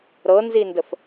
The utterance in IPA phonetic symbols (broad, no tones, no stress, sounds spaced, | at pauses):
ɾ ɤ n z i n d ə f